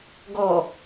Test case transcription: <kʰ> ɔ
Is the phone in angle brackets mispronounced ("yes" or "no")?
yes